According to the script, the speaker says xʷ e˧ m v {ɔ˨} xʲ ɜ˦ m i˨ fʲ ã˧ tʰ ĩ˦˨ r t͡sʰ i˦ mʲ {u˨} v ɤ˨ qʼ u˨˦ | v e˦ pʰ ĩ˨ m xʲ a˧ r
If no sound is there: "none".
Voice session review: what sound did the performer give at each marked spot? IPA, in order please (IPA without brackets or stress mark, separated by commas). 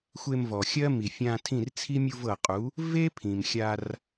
ɔ˨, u˧